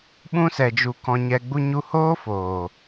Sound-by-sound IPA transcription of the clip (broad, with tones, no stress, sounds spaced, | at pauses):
ɓ ũ˧ s ɛ˨ d͡ʒ u˨ k ɔ̃˨ ɲ ɛ˨ ɡ͡b u˧ ɲ u˧ h oː˦ f oː˨